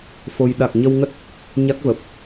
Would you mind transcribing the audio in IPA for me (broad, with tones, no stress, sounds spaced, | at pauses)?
f o˧ j ɗ a˨˩ k̚ ɲ ə˧ w ŋ ə˦˥ t̚ | ɲ a˦˥ k̚ v ə˨˩ p̚